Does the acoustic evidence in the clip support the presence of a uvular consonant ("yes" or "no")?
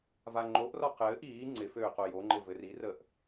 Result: yes